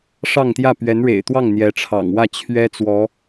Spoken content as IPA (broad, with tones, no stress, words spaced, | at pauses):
ʂɑ˥˧ŋt̪jä˥˩ pɥɛ˧˥nɻḛ˨˩ɪ̯t̪wɑ˥˩ŋ n̪jɛ˧˥ʈ͡ʂʰɑ̰˨˩ŋ wä˥˩t͡ɕʰɥɛ˥ t͡swɔ˧˥